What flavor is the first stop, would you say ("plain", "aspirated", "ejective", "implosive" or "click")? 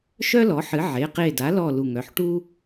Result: plain